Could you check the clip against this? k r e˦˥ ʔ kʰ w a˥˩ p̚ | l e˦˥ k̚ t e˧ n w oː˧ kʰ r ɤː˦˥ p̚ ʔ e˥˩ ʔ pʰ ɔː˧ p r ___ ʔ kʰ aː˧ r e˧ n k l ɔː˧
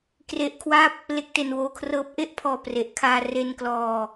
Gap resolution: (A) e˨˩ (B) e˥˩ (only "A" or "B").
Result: A